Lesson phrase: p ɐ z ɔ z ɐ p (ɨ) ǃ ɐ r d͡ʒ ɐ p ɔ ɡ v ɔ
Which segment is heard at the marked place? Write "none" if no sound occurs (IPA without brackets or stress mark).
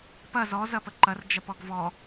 ə